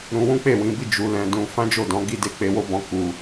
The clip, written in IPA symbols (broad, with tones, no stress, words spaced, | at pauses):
ɾũ˧wũ˦ k͡pe˦˨wĩ˨˦bi˦˨ d͡ʒu˧lɛ̃˧ dũ˧ fã˦d͡ʒo˦˨dɔ̃˨˦ ɡi˧de˧ k͡pe˧wo˦bɔ̃˧ ku˧